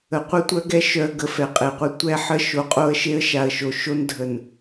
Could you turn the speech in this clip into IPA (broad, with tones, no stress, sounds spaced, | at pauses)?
ə˨ qʷ ə˦ tʷ œ˦ ɡ ɛ˦ ʃ œ˨ ə̯ ɡ ə˨ f ɛ˨ qʼ e˨ qʷ ɛ˦ tʷ ɛ˦ ħ ə˦ ʃ o˨ qʼ o˦ ə̯ ʃ e˦ ə̯ ʃ a˨ ə̯ ʃ o˨ ʃ o˦ n dʱ ə˨ n